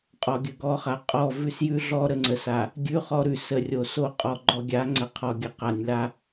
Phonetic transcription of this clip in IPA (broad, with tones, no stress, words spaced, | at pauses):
qʼɔ˨ɡʲə˨ɡɔ˨˦χa˨ qʼɔ˦˨ vʉ˦sjʉ˦ɮɔ˦ ɾə˨ŋ͡ǀə˨sa˨ | ɡʲʉ˦χɔ˦ɾʉ˨ sə˨ rʲo˨so˦˨ qʼɔ˨ɡ͡ǃɔ˨ɡʲa˨˦ ŋ͡ǀə˨qʰɔ˨ ɡʲə˨qa˨nʲla˦